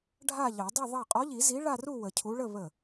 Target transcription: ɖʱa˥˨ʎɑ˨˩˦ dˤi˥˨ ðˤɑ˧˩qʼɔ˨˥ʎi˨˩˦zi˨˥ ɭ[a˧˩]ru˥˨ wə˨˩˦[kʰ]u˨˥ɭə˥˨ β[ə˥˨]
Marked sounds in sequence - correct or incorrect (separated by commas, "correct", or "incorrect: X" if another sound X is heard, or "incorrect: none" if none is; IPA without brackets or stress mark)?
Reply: incorrect: a˥˨, incorrect: cʰ, incorrect: ə˧˩